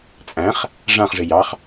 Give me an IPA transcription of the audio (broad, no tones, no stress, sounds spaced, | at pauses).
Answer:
t͡sʼ æ̃ χ | ʐ ã χ ʐ ɪ j ɑ χ